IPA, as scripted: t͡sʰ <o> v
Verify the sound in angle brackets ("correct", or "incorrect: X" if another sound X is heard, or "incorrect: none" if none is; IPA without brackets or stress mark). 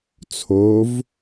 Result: correct